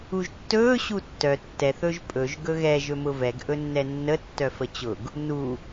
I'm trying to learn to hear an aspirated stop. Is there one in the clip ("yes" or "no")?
no